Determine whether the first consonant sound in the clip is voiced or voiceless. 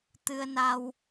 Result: voiceless